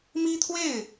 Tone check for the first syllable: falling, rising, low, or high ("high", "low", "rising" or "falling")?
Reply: high